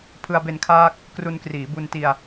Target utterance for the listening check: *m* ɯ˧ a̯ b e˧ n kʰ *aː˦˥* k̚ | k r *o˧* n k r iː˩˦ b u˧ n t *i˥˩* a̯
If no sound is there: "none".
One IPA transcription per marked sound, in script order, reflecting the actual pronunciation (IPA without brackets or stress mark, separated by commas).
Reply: pʰ, aː˦˥, u˧, i˧